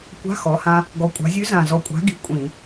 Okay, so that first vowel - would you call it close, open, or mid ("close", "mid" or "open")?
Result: open